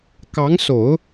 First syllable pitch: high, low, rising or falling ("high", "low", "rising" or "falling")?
rising